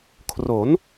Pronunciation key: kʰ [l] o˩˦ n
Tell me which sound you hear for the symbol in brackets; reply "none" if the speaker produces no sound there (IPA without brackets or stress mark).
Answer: r